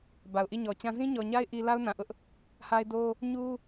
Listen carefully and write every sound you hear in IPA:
ba˨ʊ̯ʔi˦˨ɲɔ˨t͡ɕã˦ zĩ˦ɲɔ˨ɲa˦ɪ̯ ʔi˦ la˦ʊ̯nã˨ʔʊ˦ʔ | ha˦ɪ̯do˦ | ɲu˦

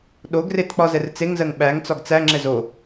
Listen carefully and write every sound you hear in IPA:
ɗoɡret k͡pɒzɛrt͡seŋzɜŋ ɓæŋ t͡sɒɡt͡sæŋ͡ǁɛ zo

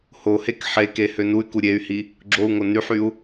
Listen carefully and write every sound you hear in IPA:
hohek ħeke hønuy̯ku ɾʲey̯hi | ɡ͡ǁou̯ŋo nyħyu̯

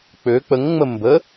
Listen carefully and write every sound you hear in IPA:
k͡pø k͡pəŋŋ͡mə mbə

